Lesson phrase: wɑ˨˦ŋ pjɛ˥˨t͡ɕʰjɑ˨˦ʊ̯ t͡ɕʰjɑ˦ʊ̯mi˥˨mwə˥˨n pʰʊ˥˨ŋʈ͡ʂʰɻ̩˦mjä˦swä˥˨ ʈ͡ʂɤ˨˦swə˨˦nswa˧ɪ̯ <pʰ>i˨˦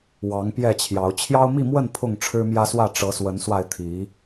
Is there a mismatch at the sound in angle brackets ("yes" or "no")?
yes